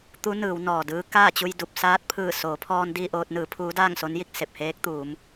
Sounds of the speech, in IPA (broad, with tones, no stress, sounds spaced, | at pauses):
t̪ u˧˥ n ɯː˩˧ w n ɔː˩ d ɯː˧˥ k aː˥˨ t͡ɕ u˧ j d u˧˩ p̚ s aː˧˥ t̚ pʰ ɯː˧˩ s oː˩˧ pʰ ɔː˧ n d iː˥˨ ʔ oː˧ t̚ n ɯː˩˧ pʰ uː˧˥ d aː˥˨ ŋ s o˧˥ n j i˥˨ k̚ s e˧˩ p̚ h eː˧˥ k̚ t̪ uː˩˧ m